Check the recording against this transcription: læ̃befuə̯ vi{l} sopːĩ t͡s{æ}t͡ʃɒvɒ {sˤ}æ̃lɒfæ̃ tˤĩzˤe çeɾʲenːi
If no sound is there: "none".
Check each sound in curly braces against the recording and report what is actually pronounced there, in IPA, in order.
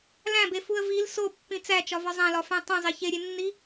l, æ, zˤ

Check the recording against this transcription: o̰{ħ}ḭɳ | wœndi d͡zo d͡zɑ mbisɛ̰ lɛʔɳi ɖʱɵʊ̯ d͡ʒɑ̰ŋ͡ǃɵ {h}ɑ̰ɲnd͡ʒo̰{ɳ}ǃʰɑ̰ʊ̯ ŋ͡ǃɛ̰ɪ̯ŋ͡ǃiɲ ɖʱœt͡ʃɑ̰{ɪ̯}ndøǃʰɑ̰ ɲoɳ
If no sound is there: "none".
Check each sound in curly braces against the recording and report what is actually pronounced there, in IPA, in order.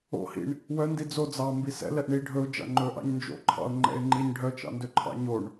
h, ʔ, none, none

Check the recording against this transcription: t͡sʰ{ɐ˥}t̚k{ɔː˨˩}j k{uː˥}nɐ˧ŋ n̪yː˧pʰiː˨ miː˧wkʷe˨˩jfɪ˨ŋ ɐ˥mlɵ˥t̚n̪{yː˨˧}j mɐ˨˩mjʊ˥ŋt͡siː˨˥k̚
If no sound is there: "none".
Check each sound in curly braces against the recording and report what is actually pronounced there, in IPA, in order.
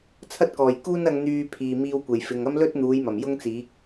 ɐ˥, ɔː˨˩, uː˥, uː˨˧

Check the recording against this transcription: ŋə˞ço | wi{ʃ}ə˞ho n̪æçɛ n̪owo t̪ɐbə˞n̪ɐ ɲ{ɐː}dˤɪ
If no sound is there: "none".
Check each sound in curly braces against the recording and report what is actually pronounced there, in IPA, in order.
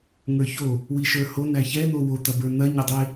ʃ, ɐ

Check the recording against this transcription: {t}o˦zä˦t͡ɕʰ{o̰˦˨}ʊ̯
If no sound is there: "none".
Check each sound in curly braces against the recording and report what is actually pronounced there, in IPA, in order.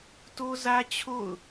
t, o̰˦˨

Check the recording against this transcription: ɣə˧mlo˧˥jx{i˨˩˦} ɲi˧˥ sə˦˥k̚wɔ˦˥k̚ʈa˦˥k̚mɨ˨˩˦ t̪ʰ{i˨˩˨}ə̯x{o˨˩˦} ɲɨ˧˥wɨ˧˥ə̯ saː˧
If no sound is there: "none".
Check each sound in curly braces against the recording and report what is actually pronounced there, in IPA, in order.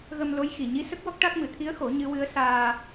i˨˩, i˧˥, o˨˩˦

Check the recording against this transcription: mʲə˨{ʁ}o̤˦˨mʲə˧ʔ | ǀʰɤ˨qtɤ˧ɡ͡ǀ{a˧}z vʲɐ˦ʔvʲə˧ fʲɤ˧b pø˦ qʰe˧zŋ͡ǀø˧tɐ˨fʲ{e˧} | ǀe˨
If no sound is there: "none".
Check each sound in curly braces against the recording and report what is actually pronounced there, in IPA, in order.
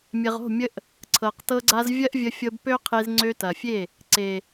ʁ, a˧, e˦˨

